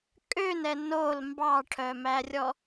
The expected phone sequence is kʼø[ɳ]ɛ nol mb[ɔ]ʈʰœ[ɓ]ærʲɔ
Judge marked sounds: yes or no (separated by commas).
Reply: no, no, no